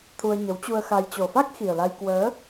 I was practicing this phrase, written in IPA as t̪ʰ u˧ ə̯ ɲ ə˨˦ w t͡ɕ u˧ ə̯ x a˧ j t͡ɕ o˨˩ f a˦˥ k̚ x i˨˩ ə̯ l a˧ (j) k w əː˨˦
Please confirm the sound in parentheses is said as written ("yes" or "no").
yes